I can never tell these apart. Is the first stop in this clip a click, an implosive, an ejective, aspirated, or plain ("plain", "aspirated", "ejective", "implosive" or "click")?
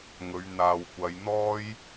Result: plain